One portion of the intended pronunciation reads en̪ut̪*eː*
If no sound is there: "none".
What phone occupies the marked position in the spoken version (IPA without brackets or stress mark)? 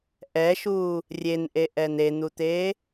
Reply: eː